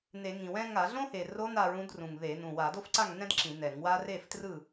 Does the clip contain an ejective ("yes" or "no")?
no